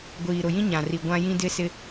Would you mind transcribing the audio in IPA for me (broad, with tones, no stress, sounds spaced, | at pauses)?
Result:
ɡʷ iː˨ ɾ ʊ˨ j ĩ˦ ɲ ã˨ r i˨ ɡʷ ã˦ j ĩ˦ d ɪ˦ s ɪ˦